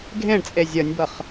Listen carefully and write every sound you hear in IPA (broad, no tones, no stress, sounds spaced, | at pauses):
ɡʱ ẽ ɳ t͡sʼ e zʲ ʌ nʲ b ʌ χ